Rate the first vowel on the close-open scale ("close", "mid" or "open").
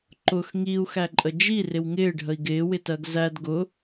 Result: close